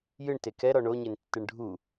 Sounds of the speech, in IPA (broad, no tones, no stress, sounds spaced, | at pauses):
j ɨ ɳ t e k ɛ ɾ ɔ ɳ o ɲ e n tː ɨ ɳ ɖʱ u